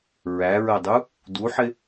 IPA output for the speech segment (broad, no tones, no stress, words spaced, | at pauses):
ɹæɹɜdˤu | duħɪ